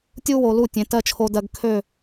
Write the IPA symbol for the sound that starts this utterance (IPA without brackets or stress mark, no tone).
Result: tʲ